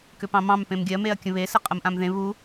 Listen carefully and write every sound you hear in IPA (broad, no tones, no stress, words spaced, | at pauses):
kʏpɑ̃mɑ̃m pẽmɡʲɜ meɐ̯kʲə̃βe səqʼəmʔãmðẽ βu